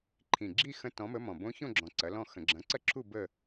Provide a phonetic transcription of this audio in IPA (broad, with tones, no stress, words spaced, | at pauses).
ǃʰĩ˨˩ɡ͡ǁi˥˧ xə̃˦˥tɔ̃˨˥mə˨˥ mɔ̃˨˩bõ˦˥ çõ˥˧ɡ͡ǁɔ̃˨˩ǀɐ˩˧ lɔ̃˥˧xə̃˧˩˧ ɡ͡ǁɐ̃˨˥ǀɐ˥˧ǁʰu˥˧ bə˥˧